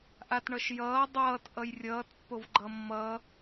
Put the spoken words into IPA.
ʔatɳʌʃjʌː dˤʌːt ʔʌjrʲʌːt pːovɡ͡ǃʌmːʌ

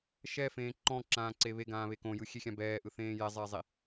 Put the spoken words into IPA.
ʃɛfẽː ǃɔ̃ǁãːǀe βeɡãːβe kõjɯxʲexʲã bɛːʔɯθẽː jɛzˤɛːzˤi

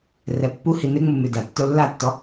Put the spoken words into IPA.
rɛpːu hinɪŋ͡mu mʉda tːolːatːɔ

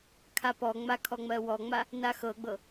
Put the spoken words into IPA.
kʰapɔŋ͡ma kʰɔŋ͡mɜwɔŋ͡ma | naxɤɡ͡bɤ

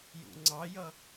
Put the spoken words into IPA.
jṵŋ͡ǀɑjʌ

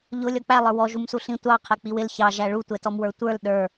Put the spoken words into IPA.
ʎʊ lʲɔk͡pælˠə˞ wɔ ʒumsuɬĩ tʷɑ qʰɛk͡piwɪl çɑʒæ ɭutʷɛtɔmwə˞ tʷə˞l ɗə˞

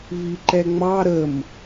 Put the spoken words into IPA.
viǃɛŋ͡mɑ ɾəm

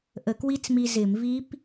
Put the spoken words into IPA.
ʔə˧˩˧kwi˦˥t͡smi˧ zɪ˧˩˧mvi˦˥p

